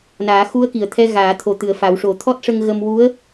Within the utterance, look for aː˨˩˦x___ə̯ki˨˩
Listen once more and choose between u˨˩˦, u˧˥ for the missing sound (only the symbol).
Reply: u˧˥